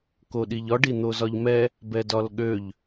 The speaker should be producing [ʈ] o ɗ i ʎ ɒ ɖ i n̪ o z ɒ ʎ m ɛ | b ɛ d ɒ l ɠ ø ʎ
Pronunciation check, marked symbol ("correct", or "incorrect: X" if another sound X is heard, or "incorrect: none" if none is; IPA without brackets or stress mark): incorrect: k